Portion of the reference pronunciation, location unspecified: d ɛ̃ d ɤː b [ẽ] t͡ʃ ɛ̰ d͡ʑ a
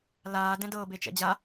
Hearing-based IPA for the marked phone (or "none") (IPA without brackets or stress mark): e